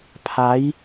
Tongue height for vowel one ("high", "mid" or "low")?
low